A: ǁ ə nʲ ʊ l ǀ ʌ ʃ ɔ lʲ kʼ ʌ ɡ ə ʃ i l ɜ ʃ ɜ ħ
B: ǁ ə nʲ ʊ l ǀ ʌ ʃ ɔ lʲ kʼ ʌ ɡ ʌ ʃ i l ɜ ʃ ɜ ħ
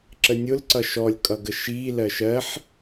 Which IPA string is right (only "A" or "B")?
A